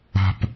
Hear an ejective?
no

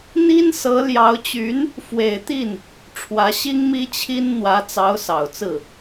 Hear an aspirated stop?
yes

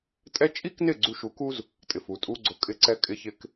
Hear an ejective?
yes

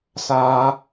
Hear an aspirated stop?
no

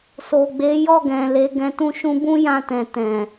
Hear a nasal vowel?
yes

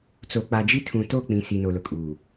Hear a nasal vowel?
yes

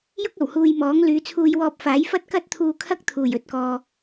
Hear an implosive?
no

